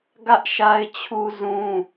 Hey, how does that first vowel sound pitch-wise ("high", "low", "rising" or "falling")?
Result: high